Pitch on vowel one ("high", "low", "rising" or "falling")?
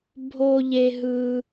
high